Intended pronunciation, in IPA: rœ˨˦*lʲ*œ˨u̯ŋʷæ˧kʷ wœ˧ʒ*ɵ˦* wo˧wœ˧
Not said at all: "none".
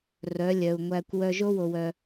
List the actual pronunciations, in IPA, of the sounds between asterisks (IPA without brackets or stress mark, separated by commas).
lʲ, o˦